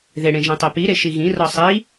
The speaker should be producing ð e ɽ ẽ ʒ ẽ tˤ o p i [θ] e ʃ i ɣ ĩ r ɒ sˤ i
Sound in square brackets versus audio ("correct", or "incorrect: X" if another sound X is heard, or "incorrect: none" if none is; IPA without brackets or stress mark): incorrect: ɾ